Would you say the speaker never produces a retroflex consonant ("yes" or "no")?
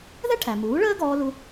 no